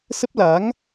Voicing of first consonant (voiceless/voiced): voiceless